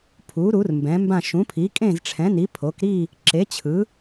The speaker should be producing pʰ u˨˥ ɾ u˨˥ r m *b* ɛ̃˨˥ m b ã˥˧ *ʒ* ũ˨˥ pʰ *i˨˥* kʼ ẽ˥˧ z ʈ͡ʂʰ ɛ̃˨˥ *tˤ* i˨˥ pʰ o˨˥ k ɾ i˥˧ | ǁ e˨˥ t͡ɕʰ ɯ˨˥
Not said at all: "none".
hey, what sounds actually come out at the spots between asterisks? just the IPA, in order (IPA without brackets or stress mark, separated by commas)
b, ʃ, i˨˥, n